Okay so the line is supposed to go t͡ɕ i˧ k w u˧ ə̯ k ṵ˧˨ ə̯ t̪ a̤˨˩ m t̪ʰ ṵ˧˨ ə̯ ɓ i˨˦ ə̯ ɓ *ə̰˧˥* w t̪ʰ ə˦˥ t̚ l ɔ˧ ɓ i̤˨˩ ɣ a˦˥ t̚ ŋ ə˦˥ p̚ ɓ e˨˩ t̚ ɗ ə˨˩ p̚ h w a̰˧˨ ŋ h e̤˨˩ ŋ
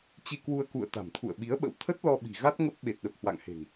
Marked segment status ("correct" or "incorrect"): correct